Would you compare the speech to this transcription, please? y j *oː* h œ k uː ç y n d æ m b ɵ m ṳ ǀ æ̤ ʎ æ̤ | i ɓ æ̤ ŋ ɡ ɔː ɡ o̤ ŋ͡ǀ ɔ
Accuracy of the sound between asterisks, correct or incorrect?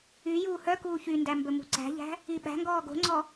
incorrect: uː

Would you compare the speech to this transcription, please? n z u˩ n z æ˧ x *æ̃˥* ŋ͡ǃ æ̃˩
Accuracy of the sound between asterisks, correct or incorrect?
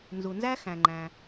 incorrect: æ̃˩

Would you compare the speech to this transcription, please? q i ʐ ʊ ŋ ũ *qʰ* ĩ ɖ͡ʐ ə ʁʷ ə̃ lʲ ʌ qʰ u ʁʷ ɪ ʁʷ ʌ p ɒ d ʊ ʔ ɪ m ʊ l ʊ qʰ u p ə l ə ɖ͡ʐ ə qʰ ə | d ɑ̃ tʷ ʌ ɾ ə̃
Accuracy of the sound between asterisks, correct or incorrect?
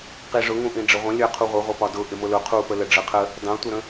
incorrect: ʔ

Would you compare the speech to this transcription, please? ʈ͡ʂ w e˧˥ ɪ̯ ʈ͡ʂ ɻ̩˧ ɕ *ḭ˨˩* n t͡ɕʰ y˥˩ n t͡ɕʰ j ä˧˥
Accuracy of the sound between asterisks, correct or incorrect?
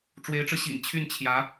correct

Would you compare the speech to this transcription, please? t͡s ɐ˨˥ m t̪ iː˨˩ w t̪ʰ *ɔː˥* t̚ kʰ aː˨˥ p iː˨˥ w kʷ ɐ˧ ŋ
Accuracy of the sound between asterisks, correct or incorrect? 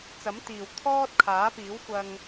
correct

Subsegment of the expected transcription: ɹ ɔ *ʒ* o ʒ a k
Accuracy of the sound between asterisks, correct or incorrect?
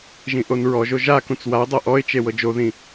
correct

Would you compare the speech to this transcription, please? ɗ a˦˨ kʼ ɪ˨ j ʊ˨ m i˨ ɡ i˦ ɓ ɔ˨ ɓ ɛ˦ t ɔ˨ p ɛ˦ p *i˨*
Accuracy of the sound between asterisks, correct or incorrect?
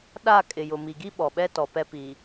correct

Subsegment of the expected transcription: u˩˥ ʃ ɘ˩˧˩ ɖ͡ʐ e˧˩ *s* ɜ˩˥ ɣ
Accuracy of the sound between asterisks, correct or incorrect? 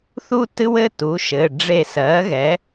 correct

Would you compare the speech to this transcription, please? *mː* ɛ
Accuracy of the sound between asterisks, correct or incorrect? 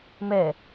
incorrect: m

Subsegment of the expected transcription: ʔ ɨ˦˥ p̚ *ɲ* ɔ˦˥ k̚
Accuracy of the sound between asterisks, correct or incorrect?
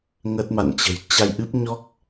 correct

